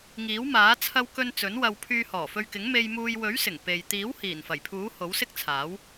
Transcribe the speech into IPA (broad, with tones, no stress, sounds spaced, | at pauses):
ŋ iː˨˥ w m aː˨˥ t͡sʰ ɐ˧ w k ɵ˧ n t͡s ɵ˨˥ n w ɐ˧ w pʰ yː˧ h ɔː˨˩ f ɵ˧ ɥ k ɪ˨˥ ŋ m e˧ j m uː˧ j w ɵ˨˥ ɥ s ɪ˨˩ ŋ p e˨ j t̪ iː˨˥ w h iː˨˩ n f ɐ˨˩ j pʰ uː˨˥ h o˨˥ w s ɪ˥ k̚ t͡sʰ aː˨˥ w